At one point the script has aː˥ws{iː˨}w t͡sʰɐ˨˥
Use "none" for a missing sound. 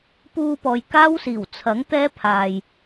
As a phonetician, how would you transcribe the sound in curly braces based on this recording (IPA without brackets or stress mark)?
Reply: iː˨˩